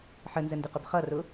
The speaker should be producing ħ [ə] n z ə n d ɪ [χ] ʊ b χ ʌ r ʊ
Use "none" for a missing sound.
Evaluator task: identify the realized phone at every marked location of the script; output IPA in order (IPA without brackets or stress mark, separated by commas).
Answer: ə, q